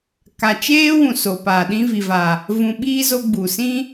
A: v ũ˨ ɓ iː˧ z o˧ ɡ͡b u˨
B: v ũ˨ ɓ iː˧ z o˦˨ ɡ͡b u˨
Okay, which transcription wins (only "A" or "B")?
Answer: A